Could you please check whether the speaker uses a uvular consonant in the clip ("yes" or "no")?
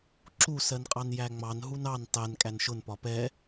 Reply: yes